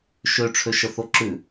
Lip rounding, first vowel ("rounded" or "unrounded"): rounded